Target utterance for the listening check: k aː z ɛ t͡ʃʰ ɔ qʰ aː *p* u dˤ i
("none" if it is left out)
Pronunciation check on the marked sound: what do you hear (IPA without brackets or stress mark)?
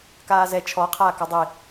k